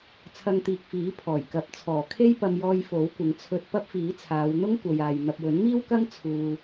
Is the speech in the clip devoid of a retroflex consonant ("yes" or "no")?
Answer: yes